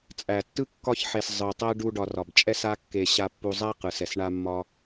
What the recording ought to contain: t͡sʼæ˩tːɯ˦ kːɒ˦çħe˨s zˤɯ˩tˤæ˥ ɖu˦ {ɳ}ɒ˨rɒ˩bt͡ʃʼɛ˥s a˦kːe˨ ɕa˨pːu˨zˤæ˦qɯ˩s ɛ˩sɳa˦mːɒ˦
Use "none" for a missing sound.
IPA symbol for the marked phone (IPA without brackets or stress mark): ɖ